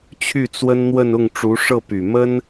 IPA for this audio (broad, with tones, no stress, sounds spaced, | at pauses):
t͡ɕʰ y˥˩ t͡s w ə˥ n n̪ w ə˥˧ n ʊ˥˩ ŋ ʈ͡ʂ u˧˥ ʂ ɤ˥˩ p y˨˩ m ə˥ n